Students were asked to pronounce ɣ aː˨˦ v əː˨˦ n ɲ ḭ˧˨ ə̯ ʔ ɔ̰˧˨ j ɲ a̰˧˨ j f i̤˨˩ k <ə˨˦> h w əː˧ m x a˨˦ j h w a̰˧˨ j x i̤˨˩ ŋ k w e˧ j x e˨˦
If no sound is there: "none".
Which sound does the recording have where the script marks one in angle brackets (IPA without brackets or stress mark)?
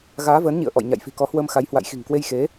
ɔ˨˦